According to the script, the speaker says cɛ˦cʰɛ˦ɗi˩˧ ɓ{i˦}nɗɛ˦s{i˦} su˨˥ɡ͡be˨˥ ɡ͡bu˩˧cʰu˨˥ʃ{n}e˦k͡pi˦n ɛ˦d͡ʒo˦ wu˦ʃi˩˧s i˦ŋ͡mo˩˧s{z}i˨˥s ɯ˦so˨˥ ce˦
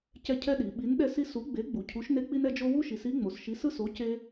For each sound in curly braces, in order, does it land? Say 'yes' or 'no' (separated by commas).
no, yes, yes, no